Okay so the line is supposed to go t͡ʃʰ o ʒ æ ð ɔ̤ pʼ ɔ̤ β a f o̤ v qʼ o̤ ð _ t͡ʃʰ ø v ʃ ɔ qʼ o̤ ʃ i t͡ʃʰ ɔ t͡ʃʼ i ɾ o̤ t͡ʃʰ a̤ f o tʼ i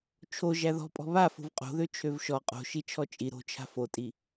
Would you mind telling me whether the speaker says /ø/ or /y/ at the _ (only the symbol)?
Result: ø